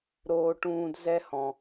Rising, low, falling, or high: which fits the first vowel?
low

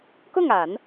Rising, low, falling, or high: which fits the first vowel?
falling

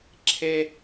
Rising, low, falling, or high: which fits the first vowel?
high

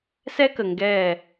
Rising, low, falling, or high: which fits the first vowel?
high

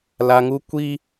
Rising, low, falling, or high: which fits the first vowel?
low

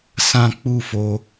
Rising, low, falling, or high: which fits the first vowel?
high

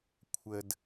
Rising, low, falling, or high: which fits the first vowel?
low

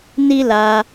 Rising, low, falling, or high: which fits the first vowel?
high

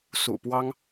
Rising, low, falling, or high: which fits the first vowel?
low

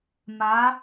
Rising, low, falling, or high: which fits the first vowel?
rising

